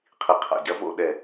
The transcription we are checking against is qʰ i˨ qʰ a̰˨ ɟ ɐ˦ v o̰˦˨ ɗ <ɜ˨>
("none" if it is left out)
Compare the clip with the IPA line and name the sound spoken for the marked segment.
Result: ɛ˨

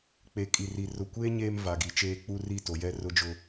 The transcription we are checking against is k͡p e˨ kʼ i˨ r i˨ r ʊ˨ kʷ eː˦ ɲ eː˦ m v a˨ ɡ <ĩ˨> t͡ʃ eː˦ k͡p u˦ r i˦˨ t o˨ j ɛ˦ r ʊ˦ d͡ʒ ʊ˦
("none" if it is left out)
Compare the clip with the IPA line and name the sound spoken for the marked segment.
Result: i˨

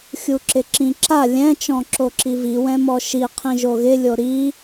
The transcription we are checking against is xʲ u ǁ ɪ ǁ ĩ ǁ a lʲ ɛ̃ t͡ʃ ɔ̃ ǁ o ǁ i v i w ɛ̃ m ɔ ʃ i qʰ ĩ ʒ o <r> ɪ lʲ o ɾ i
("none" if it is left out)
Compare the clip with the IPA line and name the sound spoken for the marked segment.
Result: ɣ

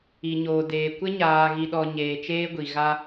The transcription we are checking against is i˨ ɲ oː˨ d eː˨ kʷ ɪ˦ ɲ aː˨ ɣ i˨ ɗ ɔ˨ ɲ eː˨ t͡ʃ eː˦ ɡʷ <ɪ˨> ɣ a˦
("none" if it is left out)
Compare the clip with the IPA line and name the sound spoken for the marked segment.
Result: i˨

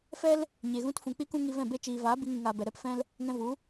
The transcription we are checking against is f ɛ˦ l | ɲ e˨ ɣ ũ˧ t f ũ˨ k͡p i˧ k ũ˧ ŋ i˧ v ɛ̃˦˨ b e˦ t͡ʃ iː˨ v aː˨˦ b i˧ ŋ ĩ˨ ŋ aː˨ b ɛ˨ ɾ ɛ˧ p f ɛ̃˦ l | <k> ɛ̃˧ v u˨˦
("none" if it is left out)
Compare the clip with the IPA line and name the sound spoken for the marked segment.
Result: ŋ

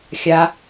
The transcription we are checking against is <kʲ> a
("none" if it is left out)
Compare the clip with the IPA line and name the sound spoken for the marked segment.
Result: xʲ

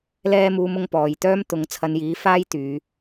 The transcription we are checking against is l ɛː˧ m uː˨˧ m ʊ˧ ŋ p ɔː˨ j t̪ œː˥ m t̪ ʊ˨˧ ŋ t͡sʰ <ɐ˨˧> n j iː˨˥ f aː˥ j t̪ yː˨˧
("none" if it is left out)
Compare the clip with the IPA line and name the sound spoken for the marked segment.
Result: ɐ˨˧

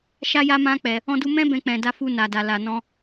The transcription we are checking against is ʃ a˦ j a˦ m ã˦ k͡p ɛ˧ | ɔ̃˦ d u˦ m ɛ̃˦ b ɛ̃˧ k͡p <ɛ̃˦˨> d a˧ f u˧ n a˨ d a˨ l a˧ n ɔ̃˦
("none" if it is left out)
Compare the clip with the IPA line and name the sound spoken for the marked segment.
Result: ɛ̃˨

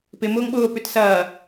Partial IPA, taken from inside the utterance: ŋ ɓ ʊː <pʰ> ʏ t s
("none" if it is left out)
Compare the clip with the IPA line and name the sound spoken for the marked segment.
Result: p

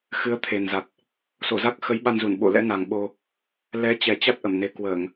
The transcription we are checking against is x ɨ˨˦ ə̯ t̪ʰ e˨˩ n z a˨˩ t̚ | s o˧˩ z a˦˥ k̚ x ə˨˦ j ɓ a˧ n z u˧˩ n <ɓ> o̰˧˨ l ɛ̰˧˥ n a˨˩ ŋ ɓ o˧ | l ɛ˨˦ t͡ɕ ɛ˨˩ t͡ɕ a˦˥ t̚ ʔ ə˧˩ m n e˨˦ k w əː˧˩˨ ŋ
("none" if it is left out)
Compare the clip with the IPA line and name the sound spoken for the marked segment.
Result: ɓ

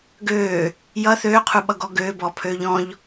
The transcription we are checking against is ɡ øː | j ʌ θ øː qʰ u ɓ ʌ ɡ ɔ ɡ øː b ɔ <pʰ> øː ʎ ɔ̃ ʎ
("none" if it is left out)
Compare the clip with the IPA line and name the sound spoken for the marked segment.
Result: pʰ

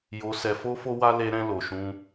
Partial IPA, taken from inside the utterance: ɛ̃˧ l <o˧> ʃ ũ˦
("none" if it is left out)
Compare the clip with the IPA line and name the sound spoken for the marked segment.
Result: o˧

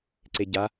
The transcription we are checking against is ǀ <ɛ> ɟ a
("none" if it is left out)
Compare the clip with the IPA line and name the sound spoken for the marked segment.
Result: e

